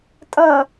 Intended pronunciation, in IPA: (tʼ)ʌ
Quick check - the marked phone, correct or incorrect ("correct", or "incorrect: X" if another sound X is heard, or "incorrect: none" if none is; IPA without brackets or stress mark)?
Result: correct